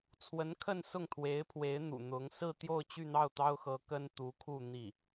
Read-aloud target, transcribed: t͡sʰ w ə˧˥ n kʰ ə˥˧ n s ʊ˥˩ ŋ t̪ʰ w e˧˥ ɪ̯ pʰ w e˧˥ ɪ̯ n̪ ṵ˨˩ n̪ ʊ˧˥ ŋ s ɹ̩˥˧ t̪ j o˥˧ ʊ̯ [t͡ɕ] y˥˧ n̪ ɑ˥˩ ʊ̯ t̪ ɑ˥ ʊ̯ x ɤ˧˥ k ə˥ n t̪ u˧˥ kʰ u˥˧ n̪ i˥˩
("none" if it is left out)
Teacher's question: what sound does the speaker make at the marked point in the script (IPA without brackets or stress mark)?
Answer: t͡ɕ